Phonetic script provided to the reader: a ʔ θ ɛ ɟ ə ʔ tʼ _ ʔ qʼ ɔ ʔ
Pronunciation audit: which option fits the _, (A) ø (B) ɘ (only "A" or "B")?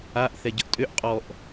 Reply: A